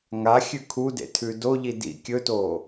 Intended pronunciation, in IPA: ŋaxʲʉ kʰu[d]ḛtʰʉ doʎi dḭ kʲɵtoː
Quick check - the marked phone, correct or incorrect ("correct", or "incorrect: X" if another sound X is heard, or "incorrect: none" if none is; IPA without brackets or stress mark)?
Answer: correct